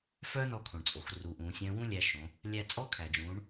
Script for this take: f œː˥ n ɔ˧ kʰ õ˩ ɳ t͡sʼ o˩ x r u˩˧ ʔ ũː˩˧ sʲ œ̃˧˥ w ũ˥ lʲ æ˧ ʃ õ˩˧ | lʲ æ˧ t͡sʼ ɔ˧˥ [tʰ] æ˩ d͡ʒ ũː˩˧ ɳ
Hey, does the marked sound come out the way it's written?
no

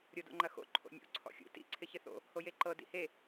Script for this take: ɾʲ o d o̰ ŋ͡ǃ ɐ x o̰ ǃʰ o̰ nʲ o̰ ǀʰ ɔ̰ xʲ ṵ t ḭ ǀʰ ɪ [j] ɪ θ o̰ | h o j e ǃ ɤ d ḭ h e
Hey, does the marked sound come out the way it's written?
no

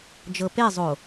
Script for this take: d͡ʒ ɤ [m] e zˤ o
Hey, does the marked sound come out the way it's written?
no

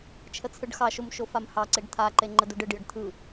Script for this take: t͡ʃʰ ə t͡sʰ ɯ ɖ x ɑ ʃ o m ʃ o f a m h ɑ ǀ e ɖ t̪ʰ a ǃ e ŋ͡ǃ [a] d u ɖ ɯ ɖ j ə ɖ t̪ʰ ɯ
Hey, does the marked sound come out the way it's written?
no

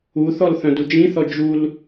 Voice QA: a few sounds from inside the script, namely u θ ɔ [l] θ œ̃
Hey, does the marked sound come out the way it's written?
yes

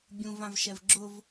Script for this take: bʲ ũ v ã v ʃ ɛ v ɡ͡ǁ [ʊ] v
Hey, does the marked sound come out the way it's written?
yes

